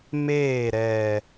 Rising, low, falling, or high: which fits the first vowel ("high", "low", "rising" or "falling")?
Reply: falling